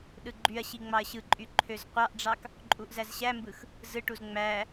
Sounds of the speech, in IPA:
ɗɯɡ͡ǃyɐ̯ɕi ŋ͡mɑɐ̯ɕɯǃʼy ǃʰøzqʷɑʔɖ͡ʐɑk | ǃʼuʔzæzɕæmbɯx | zɯʈuz ŋ͡mæ

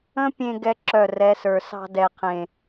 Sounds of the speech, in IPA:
ə̃˦pʲẽ˧ ɡɛ˦ǁœ˦˨rɛ˨˦sə˞˨ sɑ̤˧ dɛ˨qʰẽ˨

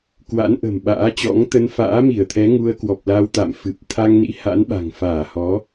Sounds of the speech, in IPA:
kwa̰˧˥nʔə̤˨˩mɓa̰ː˧˥t͡ɕɔ̰˧˥ŋ t̪ə˧nfa̰ː˧˥mi˧˩ə̯t̪ʰɛ˨˦ ŋu˧ə̯ kwɔ˨˩p̚la˧wt̪a̰˧˨mfɨ˨˩p̚ t̪ʰa˧ŋnḭ˧˥ ha̰˧˥nɓa̤˨˩ŋfaː˧˩hɔ˨˦

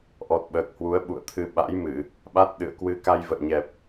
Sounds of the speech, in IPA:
ʔɔ˨˩t̚ɓəː˨˩k̚hwu˨˦ə̯ ɓṵ˧˨ə̯t̪ʰɨ˨˦ ɓa̰˧˥jmɨ˧˩˨ | ɓa˦˥t̚ɗɨ̰˧˨ə̯ kwɨ˨˦ ka˧jvə̰ː˧˨ɲɛ˨˩p̚

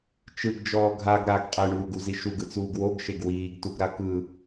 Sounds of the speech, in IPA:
t͡ʃɯɡd͡ʒɔː ɡʱaɡ ɾaɡ qʼɛɳuːɡuzi ʃuɡɯt͡suːɡ woɡʃeɡ wiːɡtuɡɾa kɯ

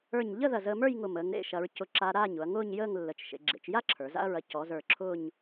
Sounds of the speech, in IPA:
ə˞˧˩ɲʎə˥˧ ðɐ˧˩zəː˧mə˞˥˧jŋʊ˧˩ məː˩˧ŋɾḛ˥˧ʃɐ˩˧ɹ cʊ˧ǁa˧ ɾaː˥˧ɲʊ˩˧ɐ̯ŋʊː˥˧ɲjəː˥˧ŋ lːə˩˧t͡ʃʃḛ˩˧ ɡ͡ǁḛ˩˧t͡ʃja˥ ǁʰə˞˩˧za̰˥ɐ̯ɹɐ˧ cɔ˩˧zə˞˧˩ ǁʰʊː˥˧ɲ

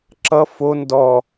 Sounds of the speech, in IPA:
ǁʌ fo ndɔ

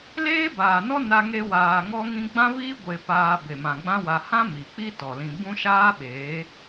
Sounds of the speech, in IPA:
leː˦baː˨nɔ˦ na˧ŋe˧waː˨ ŋɔ˦ŋĩ˦ ɡ͡bã˦viː˦ ɡʷe˧paː˧ be˨mã˨ɡ͡bã˦wa˧ hã˦ mi˨k͡pi˦ tɔ˨lĩ˧ bũ˦ʃaː˦ɓeː˨˦

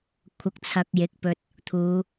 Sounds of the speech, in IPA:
kʷʰɐ˧k̚t͡sʰɐ˧k̚jɪ˨˥k̚pɵ˧t̚ | t̪ʰuː˨˧

